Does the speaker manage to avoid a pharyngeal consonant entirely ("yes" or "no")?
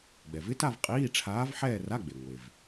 no